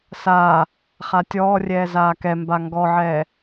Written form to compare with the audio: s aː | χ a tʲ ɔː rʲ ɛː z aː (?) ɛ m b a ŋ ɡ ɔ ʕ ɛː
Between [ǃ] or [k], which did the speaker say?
k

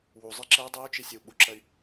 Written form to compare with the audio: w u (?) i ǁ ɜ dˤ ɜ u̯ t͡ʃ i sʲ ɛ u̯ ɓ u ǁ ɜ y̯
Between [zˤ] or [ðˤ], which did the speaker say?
zˤ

